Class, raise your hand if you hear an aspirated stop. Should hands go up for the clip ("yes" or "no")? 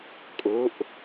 no